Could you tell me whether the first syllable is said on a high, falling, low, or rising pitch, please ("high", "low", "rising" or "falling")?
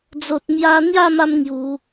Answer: low